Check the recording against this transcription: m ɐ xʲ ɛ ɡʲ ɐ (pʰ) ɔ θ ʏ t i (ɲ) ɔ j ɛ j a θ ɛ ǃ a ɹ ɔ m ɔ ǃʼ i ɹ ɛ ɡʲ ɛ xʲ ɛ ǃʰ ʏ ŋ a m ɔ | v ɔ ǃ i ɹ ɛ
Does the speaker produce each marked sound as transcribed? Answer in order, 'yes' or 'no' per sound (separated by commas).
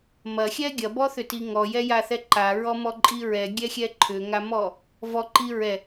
no, no